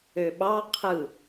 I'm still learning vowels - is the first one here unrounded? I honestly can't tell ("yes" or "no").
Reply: no